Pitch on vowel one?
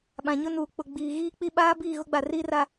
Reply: low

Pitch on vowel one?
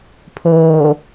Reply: low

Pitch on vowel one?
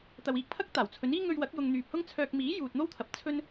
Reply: low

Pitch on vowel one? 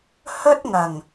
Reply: high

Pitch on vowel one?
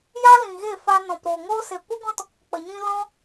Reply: high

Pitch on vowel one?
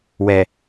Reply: low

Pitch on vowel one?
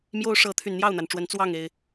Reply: high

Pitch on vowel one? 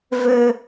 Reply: high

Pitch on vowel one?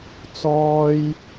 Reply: high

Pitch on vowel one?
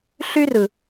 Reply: high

